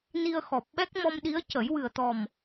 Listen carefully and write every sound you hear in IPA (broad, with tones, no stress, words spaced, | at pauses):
ni˧ə̯xɔ˨˩p̚ɓɛ˦˥k̚ mɔ˧mɗi˧˥ə̯cə˨˩˦j wɨ˨˩ə̯t̪ɔ˨˩m